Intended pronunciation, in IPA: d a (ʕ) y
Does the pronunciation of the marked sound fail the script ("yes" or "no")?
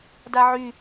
no